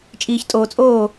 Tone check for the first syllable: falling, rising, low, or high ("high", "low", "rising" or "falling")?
low